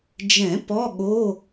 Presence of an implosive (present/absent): present